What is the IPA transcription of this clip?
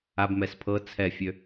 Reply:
abmɛs pʰɤ t͡sʰɛfʲø

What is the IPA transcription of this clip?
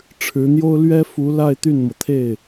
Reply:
ʈ͡ʂʰɻ̩˧˥n̪jo˥ʊ̯ lɥɛ˥fu˧˥ la˥˧ɪ̯ t̪y˥˩nmɤ˩ t̪ʰe˥˩ɪ̯

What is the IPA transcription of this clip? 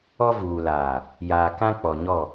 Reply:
ɔ˦vuː˨laː˨ | jaː˨kã˦k͡pɔ˨ɲɔ˦˨

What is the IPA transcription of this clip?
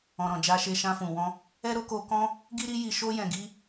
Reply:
ɔ̃˨ɾɔ̃˨d͡ʒa˧ʃe˧ ʃã˧fũ˨wɔ̃˧ | ɛ˦ɾo˦ko˧kɔ̃˦ | ɡi˦ɾi˦ ji˧ʃo˦ jɛ̃˧ɡi˦

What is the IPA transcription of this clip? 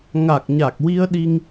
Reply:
ŋa˨˩k̚ɲa˨˩k̚wi˧ə̯ ɗi˧ŋ

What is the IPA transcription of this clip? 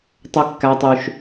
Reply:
tˤø˦kːæ˦tˤy˦ʃ

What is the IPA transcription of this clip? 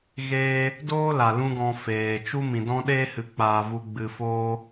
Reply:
ɣeː˦ | doː˦la˨ lũ˦ɡɔ̃˧ feː˨ t͡ʃu˦ mĩ˨dɔ̃˦ɗeː˦hɨ˨˦ k͡paː˧vu˧ ɡ͡bɨ˨foː˧

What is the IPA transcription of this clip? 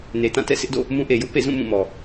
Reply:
ne˨tã˦˨tɛ̰˦˨ sʰɪ˦ʔdo̰˦˨ | mũ˦ʔe˨ jʊ˦ʔpḛ˦˨zũ˦˨ mũ˦˨mɔ˨

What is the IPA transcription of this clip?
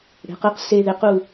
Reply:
ɽe̤˩˧qɯ˩˥q se˧ðe˩˥qu˩˧˩

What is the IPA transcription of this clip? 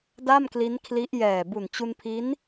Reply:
da˥˩mkli˦˥nkʰli˦˥ʔ jɛː˨˩ bu˨˩nt͡ɕu˧npʰi˦˥n

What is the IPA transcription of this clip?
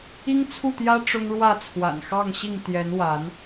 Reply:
i˦ŋt͡sʰu˥˨t̪jä˦ ʈ͡ʂʊ˦ŋɻwä˥˨ t͡sʰwa̰˨˩nxɑ˥˨ŋɕi˥˨ŋ t̪jɛ˨˦nwa˨˦n

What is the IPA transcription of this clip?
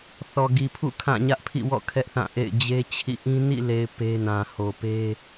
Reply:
θɔ˨ɡi˨pʰṵ˦˨ kʰã˦˨ ɲä˦ʔpʰḭ˦˨wɔ̰˦˨ kʰɛ˦ʔθã˦˨ʔḛ˦˨ɪ̯ d͡ʑe˦t͡ɕʰḭ˦˨ ʔĩ˦ nḭ˦˨le˨ɪ̯ pe˦nã˨ ho˨pe˦

